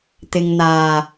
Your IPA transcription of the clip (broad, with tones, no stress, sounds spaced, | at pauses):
t̪ ɪ˨ ŋ n̪ aː˨˩